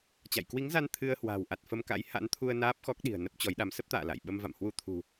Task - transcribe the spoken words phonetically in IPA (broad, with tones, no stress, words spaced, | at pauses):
t͡ɕa̰˧˨j kwi˨˦ŋza˧n t̪ʰɨ˧ə̯hwa̤ː˨˩wʔa˨˩t̚ fə˧mka̰˧˥j ha̰˧˥nt̪ʰu˧ə̯ naː˦˥p̚xɔ˦˥k̚ ɗi̤˨˩ə̯nə˦˥p̚t͡ɕɔ˨˦jɗa˨˦m sə˦˥p̚t̪a̰ː˧˨ la̰˧˨j ɓə˧m va̰˧˨mhwu˧t̪ʰṳ˨˩